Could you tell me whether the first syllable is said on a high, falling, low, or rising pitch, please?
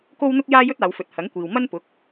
high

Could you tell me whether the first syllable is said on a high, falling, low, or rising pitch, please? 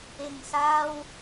low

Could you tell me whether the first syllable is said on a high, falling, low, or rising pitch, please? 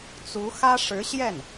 rising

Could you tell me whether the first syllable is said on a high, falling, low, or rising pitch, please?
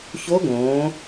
rising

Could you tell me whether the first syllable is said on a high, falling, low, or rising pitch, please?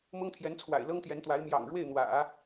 high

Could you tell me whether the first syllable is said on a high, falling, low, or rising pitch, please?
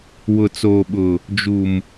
low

